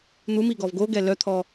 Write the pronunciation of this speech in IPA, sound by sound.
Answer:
n̪ u m i ɡ ɔ v ɡ o ɡ ɛ l œ t̪ʰ ɔ

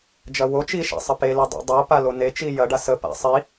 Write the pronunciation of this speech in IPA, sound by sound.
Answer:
d͡ʒ ɐ w o t͡ʃ i ʃ a̰ sˤ ə p e l e dˤ o̰ dˤ o p a l o n e t͡ʃ i j ɐ ɖ a s ə p a̰ sˤ i

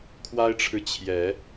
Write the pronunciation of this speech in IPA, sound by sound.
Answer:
kʰ w a˦ ɪ̯ ʈ͡ʂʰ ɻ̩˨ t͡ɕʰ j ɛ˨˦

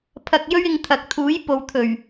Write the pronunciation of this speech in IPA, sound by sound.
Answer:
pʰ ɐ˧ k̚ j ɵ˥ ɥ ɪ˧ ŋ t̪ʰ ɐ˨ k̚ t̪ʰ uː˨˥ j p o˨ w t̪ʰ ɵ˨˩ ɥ

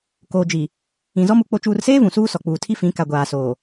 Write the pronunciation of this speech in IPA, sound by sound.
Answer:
k oː˨ d͡ʒ i˨ | ĩ˨ z ɔ˦ m u˨˦ k͡p o˨ t͡ʃ uː˨ r s eː˦ v ũ˨ s uː˦ s ɔ˨ k͡p uː˨ tʰ i˦ f ĩ˨˦ k a˨ ɡʷ aː˨ s oː˨

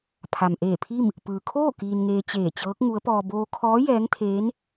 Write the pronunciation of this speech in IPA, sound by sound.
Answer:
pʰ a˩ m ʔ eː˧˩ pʰ i˥˨ m | p ɯː˩ kʰ oː˥˨ k iː˧ n ŋ eː˧ t͡ɕ eː˧˩ t͡ɕ ɤː˧˥ k̚ ŋ u˧˥ ə̯ p ɔː˧ b oː˧ kʰ ɔː˧˥ j ɛː˧˥ ŋ t̪ʰ eː˧˥ n

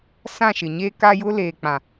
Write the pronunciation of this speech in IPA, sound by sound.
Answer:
s ã˦˨ ʃ ɪ˨ ɲ e˦ k a˦ j ʊ˦ l eː˨ k͡p ã˨

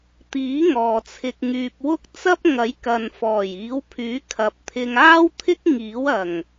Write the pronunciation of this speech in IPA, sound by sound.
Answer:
t̪ iː˨˥ ŋ ɔː˨ t͡sʰ ɪ˧ k̚ ŋ yː˧ p̚ w ʊ˥ k̚ t͡s ɐ˥ p̚ ŋ ɐ˨˥ j k ɐ˨ n f ɔː˨˩ j iː˨˥ w pʰ yː˨˥ kʰ ɐ˨˥ p̚ t̪ʰ ɪ˧ ŋ aː˥ w t̪ʰ ɪ˥ k̚ ŋ iː˨˥ w ɐ˨˩ ŋ

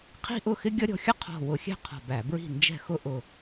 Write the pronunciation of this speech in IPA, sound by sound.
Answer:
qʰ i̤˥ ʔ ʊ˥˨ x ɪ˥ ɡʲ ʌ˥ ɾʲ ɔ̤˧ xʲ ə˥ qʰ ɔ̤˧˩ w ʊ˧˩˧ xʲ ɛ̤˥˨ qʰ ɔ̤˧˩ b æ˧˩˧ b ɹ i̤˥˨ n d͡ʒ ɛ̤˥˨ x ʊ˥ ʔ ʊ˧˩

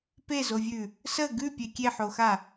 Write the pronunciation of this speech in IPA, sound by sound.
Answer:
p e z o vʲ ʉ | s ə ɡ ʉ pʲ e kʲ e ħ o x a

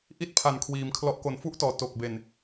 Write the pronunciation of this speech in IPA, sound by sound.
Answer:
ʔ i˥˩ t̚ pʰ a˨˩ n kʰ w iː˩˦ m kʰ l ɔ˦˥ ʔ k o˨˩ n f u˦˥ ʔ t ɔː˩˦ t o˨˩ k̚ b e˨˩ n

